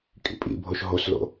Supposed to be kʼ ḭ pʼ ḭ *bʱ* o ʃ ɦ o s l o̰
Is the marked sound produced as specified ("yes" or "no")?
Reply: yes